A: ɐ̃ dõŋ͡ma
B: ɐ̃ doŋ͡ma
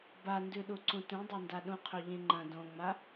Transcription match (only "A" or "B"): A